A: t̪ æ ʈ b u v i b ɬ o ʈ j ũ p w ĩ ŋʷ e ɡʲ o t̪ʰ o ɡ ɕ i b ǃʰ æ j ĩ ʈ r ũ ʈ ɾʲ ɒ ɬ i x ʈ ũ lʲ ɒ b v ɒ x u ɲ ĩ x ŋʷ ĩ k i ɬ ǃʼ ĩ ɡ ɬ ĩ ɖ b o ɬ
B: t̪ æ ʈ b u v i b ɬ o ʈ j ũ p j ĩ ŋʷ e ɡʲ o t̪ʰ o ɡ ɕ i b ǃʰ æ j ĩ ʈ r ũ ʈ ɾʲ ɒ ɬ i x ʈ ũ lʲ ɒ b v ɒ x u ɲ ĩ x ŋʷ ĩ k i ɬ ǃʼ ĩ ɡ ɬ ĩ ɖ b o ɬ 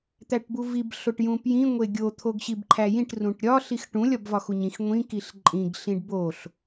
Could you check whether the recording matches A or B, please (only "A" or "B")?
B